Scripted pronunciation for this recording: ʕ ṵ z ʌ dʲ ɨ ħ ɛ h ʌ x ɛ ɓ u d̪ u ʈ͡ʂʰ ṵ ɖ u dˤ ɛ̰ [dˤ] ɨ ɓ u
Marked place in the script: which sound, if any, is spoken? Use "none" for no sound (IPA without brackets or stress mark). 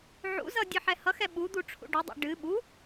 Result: ɖ